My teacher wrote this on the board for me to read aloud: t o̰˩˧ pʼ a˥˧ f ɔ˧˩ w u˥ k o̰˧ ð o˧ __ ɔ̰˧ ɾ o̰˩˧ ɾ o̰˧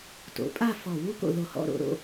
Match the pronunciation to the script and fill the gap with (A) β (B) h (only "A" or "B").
B